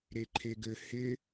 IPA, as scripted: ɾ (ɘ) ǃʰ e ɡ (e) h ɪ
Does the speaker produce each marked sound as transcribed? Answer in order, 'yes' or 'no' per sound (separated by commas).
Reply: no, no